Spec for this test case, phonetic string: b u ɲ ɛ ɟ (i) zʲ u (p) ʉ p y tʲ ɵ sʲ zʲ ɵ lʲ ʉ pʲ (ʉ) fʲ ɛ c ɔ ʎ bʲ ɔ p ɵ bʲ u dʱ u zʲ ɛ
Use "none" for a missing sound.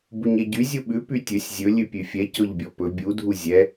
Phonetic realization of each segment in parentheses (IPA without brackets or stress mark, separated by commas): y, ɓ, ʉ